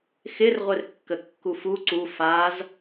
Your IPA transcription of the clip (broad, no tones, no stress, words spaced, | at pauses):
xɪrʁʷɪrkːəkːuf u ǀu faz